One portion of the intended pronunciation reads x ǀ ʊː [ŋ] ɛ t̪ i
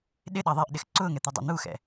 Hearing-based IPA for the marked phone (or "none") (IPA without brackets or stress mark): ŋ